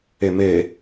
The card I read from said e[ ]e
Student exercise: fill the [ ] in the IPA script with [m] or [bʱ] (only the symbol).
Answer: m